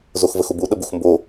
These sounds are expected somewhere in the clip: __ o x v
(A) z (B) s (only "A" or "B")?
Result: A